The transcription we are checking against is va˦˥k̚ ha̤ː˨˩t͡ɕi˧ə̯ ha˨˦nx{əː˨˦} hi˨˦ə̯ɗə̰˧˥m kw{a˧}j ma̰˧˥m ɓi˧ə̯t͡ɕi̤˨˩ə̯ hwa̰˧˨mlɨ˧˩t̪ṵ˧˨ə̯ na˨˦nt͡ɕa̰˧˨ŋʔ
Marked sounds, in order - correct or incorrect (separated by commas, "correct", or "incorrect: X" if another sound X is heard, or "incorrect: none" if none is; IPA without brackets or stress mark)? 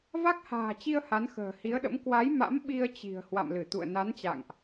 incorrect: ə̤ː˨˩, incorrect: a˨˦